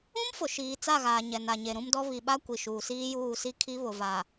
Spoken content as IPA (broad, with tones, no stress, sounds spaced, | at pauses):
ũ˦ m f ʊ˨ ʃ iː˨ t͡s a˦˨ ɣ aː˨ ɲ ɛ˨ n a˨ ɲ e˨ ɾ ũ˦ m d ɔ˦ β i˨ ɓ a˦ kʷ i˨ ʃ uː˨ s iː˦ j uː˦˨ s i˦ kʰ i˦ β ʊ˨ v a˨